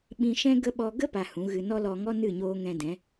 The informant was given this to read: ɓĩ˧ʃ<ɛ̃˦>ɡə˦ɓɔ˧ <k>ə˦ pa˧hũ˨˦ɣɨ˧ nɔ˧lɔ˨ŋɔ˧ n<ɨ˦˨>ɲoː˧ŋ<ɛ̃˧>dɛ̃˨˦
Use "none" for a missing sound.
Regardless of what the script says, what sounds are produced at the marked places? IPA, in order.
ɛ̃˦, ɡ, ɨ˦˨, ɛ̃˧

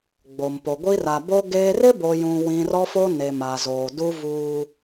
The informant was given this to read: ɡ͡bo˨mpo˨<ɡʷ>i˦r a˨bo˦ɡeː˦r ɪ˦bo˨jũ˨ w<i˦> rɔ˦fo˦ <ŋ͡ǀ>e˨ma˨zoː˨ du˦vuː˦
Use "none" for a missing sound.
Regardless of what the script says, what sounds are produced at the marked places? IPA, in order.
ɡʷ, ĩ˦, n

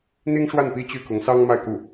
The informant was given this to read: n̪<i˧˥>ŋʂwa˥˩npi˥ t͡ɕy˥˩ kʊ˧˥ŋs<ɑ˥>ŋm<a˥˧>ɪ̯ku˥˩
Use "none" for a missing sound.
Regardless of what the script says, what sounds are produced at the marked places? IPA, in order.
i˥, ɑ˥, a˥˧

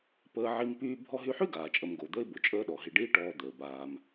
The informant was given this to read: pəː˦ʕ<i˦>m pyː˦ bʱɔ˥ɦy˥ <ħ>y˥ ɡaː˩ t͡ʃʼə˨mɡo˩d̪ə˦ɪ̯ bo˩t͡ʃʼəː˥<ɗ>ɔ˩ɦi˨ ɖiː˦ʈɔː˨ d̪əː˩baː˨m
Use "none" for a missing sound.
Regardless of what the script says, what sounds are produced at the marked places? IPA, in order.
i˦, ħ, ɗ

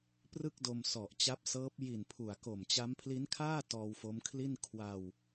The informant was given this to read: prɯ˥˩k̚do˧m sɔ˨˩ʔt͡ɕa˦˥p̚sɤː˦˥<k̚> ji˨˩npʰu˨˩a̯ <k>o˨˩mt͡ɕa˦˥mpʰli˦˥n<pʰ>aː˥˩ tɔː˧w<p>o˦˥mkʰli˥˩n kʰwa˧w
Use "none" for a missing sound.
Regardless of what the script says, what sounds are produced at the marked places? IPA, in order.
p̚, k, kʰ, f

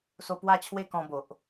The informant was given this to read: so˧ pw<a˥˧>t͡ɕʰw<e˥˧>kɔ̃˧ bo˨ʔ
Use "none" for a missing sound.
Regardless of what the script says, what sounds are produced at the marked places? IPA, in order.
a˥˧, e˥˧

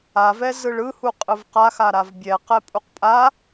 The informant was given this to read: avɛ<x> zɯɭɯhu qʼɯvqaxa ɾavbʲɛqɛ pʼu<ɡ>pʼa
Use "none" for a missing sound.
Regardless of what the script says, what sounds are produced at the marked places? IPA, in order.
none, q

